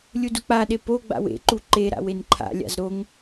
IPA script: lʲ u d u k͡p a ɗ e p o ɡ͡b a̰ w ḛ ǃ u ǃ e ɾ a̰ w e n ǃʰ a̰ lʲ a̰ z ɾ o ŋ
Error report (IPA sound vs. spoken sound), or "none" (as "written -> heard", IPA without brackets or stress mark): none